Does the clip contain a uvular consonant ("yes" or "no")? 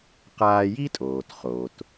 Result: yes